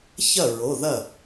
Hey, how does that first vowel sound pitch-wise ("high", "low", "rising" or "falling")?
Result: falling